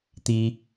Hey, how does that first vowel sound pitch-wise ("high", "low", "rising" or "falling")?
high